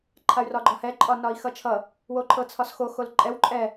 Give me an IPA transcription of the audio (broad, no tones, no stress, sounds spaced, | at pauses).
ǃʰ a y̯ r ɒ ɡ͡ǃ ɒ h ɛ ǃʼ ɒ n ɒ i̯ x ʌ t͡ʃʰ ʌ | w o ǃʰ ɤ t͡sʰ ɒ s x o x o l ǃʼ ɛ w ǃʼ ɛ